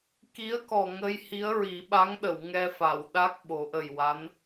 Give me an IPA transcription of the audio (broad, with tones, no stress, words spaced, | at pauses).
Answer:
ki˧˥ə̯kɔ˨˩ŋə˧j hi˧˥ə̯ɹi˨˩˦ ɓa˧˥ŋɗə˨˩˨w ŋɛ˧fa˨˩˨wɗa˦˥k̚ ɓo˨˩˦ʔə˨˩jwa˧˥n